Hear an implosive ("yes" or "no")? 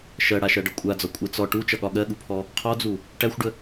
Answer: yes